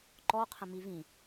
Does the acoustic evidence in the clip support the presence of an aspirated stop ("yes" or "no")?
yes